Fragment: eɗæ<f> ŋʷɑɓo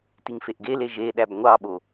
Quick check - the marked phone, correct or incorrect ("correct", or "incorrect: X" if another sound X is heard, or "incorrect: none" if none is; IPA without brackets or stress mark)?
incorrect: b